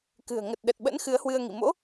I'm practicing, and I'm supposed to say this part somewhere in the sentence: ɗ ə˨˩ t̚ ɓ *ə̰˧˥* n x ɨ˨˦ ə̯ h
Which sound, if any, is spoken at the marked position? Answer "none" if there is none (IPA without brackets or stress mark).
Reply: ə̰˧˥